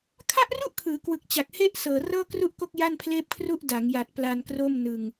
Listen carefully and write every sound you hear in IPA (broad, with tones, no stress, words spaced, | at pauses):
kʰa˥˩ʔru˥˩ʔkʰɯː˩˦kwɯ˨˩k̚ t͡ɕa˨˩k̚he˥˩ʔsɤː˨˩ rɤː˥˩kru˥˩ʔko˥˩k̚ ja˥˩npʰleː˥˩p̚kʰru˥˩ʔ da˩˦ŋja˨˩t̚ pla˧nkro˥˩mnɯ˧ŋ